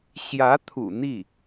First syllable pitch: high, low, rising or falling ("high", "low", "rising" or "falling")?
rising